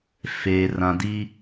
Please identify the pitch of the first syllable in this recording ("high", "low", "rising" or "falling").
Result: low